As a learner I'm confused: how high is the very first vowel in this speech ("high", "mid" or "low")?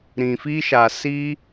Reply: high